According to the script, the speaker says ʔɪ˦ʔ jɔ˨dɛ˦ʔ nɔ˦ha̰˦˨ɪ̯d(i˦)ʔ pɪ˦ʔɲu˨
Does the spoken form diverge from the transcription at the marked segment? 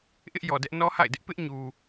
yes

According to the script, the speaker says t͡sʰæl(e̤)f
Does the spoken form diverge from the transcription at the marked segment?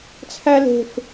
no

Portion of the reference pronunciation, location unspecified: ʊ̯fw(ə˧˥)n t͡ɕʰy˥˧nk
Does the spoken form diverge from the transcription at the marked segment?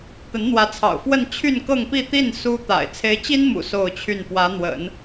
yes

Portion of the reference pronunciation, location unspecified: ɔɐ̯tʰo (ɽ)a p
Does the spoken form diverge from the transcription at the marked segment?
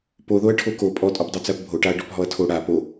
no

